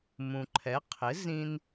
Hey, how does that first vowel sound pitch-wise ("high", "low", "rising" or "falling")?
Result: low